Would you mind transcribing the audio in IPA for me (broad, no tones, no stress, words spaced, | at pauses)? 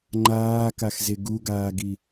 ŋ͡ǃaːkaxze ɡuɡaːɡi